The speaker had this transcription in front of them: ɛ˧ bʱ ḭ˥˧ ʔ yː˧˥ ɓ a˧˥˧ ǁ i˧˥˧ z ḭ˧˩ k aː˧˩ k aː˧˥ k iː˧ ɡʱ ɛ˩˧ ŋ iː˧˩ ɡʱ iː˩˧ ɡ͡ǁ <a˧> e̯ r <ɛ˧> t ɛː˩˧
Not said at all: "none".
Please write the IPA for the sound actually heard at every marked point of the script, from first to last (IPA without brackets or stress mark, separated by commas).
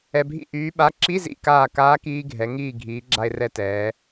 a˧, ɛ˧